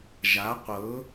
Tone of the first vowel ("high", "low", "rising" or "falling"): rising